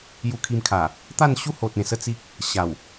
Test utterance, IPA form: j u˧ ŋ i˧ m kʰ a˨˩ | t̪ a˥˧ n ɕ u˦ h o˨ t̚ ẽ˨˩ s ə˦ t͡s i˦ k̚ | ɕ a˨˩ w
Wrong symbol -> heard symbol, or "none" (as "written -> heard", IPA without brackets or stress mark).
ŋ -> kʰ